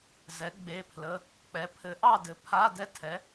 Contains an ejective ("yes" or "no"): no